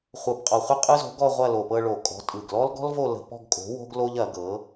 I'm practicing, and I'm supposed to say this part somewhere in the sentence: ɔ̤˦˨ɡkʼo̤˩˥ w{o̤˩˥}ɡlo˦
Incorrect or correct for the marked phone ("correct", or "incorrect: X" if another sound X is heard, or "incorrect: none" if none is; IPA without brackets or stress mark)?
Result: incorrect: o̤˦